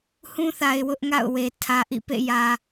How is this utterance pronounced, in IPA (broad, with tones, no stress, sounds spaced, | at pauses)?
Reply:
h ũ˦ θ a˨ ɪ̯ w ʊ˦ ʔ ŋ a̰˦˨ ʊ̯ w e˨ tʰ ä˨ ʔ ḭ˦˨ p ḛ˦˨ j ä˨